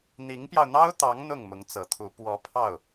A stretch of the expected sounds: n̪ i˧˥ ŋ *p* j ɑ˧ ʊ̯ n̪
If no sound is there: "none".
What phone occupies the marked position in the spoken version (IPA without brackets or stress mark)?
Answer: p